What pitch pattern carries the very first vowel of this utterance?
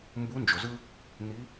rising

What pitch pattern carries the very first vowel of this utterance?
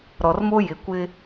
low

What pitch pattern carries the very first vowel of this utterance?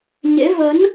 rising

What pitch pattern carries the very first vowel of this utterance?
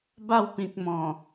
falling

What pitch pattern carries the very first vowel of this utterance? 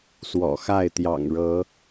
low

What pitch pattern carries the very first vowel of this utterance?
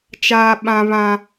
high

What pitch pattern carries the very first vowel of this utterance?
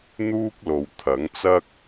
high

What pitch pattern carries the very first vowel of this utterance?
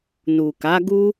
low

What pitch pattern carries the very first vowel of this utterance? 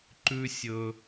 high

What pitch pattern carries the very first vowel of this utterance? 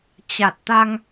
low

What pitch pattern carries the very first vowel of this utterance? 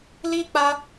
high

